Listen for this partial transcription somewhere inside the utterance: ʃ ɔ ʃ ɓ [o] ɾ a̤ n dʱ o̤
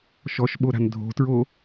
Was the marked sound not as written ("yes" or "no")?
no